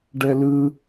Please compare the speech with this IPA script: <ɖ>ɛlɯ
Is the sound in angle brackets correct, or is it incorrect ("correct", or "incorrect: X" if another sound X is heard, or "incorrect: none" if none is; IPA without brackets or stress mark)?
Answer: correct